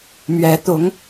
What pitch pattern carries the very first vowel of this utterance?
rising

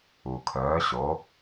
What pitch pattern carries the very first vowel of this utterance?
low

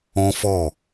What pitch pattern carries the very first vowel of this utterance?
high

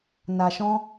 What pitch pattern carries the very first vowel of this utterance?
low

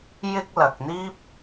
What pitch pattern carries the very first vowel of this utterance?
high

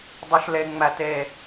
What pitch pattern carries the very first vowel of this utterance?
high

